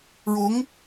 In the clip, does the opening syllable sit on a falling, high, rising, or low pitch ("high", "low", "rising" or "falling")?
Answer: rising